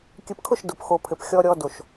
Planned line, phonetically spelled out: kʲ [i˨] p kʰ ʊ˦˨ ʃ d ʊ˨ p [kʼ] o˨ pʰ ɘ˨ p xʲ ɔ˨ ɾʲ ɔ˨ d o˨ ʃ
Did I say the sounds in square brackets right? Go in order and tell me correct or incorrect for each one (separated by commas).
incorrect, incorrect